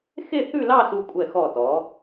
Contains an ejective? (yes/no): yes